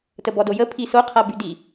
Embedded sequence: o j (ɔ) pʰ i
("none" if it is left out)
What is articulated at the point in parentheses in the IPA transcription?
ə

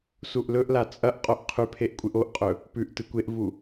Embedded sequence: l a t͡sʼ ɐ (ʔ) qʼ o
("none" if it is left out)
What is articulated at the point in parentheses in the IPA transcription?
ʔ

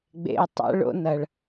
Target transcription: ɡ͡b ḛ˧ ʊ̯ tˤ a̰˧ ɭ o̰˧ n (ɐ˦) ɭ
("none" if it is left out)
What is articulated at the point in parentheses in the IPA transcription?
ɐ˦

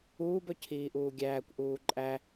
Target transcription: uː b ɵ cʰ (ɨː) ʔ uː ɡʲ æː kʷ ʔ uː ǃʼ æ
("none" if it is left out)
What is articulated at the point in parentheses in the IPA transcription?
iː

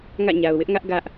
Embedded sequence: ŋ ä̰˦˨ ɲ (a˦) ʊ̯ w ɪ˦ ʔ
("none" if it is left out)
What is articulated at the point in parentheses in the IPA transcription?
a˨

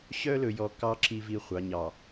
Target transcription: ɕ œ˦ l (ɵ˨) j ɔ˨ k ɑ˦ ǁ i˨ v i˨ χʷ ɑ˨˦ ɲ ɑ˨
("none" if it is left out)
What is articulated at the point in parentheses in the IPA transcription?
ɵ˨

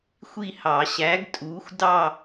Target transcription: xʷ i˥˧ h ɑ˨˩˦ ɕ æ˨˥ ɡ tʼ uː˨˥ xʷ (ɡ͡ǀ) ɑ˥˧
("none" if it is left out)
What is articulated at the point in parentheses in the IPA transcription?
d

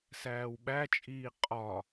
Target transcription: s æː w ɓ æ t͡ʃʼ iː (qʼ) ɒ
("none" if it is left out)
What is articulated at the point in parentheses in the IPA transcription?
qʼ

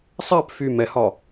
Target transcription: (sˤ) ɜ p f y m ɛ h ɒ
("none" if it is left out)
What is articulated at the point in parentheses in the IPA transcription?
sˤ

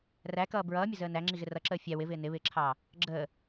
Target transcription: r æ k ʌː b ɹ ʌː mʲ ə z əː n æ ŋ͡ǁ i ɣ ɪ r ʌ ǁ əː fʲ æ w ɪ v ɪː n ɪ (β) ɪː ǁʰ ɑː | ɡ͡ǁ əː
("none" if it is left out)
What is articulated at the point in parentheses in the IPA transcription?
β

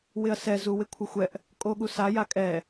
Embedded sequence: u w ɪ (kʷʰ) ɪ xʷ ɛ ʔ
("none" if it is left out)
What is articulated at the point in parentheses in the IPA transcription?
kʷʰ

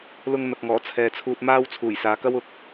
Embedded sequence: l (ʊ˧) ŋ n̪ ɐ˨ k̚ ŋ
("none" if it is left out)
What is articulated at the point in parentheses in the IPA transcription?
ʊ˧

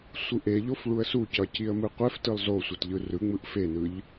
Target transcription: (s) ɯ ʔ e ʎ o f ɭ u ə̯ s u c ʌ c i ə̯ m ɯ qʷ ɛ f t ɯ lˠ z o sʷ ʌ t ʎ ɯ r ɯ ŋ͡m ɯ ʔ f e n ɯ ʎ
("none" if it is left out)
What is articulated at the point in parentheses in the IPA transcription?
sʷ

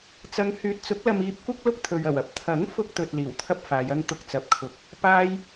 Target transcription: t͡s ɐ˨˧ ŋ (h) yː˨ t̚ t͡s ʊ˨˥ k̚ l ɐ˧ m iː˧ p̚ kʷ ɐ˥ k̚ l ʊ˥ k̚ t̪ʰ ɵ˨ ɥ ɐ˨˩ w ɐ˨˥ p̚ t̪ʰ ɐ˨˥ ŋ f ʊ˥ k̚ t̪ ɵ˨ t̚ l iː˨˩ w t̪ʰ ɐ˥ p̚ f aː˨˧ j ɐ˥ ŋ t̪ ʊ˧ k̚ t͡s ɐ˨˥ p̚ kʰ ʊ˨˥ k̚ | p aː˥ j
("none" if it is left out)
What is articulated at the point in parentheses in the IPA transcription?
h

